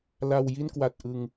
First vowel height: low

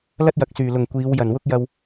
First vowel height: low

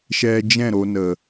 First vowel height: mid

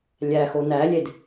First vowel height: low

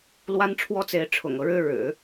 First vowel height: low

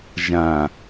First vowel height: low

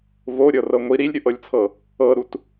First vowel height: mid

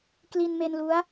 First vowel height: high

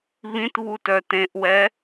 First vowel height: high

